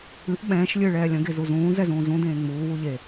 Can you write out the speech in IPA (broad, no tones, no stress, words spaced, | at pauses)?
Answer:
ɨʔ ɓɛ̃ːʃ lʲɨːɭɛːlʲə̃ ɡezuzũː zɛzũːzũ dẽːŋ͡muː wuʎe